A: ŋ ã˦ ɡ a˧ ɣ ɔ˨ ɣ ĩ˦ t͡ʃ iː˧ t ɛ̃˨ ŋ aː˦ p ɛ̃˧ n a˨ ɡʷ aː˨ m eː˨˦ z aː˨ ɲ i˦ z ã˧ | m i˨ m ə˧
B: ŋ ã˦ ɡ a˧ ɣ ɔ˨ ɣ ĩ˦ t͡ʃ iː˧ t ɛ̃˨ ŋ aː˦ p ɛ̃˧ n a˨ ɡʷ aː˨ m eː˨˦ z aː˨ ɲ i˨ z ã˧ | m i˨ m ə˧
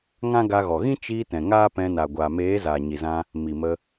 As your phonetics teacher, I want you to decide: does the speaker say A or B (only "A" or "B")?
B